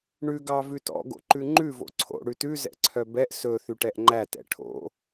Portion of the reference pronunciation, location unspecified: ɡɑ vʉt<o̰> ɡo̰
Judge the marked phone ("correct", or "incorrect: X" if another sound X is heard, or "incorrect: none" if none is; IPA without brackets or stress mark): incorrect: ɔ̰